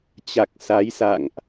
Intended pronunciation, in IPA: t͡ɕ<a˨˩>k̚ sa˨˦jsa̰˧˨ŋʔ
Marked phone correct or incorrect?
correct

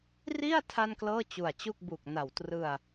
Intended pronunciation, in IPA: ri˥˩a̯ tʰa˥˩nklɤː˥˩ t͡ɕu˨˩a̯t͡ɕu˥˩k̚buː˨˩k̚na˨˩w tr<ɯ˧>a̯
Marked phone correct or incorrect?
correct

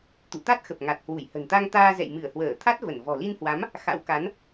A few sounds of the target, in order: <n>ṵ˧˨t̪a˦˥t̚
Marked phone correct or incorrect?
incorrect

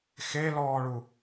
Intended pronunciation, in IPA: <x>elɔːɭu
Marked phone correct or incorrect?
correct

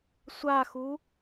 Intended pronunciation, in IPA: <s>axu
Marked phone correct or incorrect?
incorrect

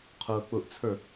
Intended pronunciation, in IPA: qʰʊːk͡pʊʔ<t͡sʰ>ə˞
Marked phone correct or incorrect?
correct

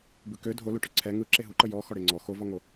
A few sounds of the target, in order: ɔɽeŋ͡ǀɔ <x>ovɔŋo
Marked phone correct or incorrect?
correct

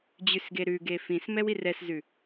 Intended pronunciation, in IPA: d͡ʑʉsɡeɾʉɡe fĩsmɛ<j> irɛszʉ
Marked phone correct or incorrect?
incorrect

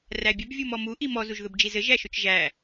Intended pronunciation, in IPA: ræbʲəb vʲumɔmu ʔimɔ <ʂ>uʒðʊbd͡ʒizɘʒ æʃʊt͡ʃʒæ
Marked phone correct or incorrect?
incorrect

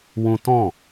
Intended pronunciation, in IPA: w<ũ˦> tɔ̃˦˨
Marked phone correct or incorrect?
correct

